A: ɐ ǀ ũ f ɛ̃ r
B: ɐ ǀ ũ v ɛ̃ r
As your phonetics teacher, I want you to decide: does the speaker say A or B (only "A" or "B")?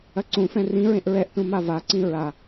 A